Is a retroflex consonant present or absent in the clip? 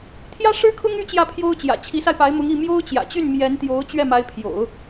present